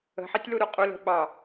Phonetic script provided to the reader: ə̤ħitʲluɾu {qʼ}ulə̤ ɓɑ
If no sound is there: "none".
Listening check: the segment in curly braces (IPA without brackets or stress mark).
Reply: qʼ